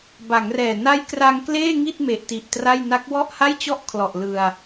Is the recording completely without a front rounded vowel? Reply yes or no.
yes